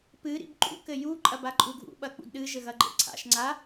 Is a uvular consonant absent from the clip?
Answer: yes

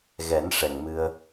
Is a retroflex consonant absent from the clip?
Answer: no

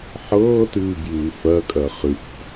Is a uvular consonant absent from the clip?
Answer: no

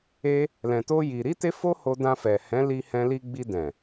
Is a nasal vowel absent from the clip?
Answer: no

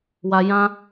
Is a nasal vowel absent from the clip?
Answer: no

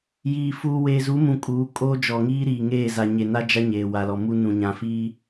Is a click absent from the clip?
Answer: yes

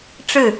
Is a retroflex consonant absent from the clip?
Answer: no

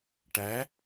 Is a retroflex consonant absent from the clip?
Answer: no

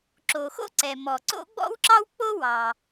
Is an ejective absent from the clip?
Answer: yes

